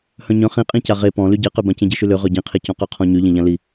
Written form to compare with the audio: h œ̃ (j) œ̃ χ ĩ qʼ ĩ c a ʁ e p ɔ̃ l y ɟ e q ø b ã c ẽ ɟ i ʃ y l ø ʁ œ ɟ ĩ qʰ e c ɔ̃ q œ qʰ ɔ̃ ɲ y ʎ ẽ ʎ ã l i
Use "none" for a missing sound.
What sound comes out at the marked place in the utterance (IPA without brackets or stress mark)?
ɲ